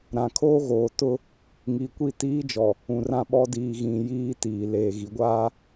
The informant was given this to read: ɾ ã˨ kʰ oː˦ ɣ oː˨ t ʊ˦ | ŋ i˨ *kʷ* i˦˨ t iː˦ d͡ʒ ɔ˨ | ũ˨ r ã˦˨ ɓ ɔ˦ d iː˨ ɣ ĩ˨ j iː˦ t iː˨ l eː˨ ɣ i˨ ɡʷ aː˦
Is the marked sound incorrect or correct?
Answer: correct